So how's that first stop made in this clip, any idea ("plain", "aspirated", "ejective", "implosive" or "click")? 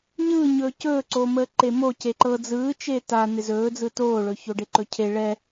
plain